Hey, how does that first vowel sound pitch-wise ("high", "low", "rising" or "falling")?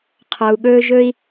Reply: low